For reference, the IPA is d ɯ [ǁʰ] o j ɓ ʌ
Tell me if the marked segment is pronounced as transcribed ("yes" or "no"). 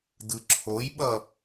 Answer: yes